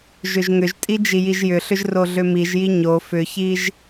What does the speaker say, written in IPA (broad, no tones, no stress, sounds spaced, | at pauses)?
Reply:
ʒ ʏ ʒ ŋ ʏ ʒ tʼ i d͡ʒ i j i ʒ j ʏ ɬ ʏ ʒ r o ɮ ʏ m i ʒ j i ɲ o f ʏ ç i ʒ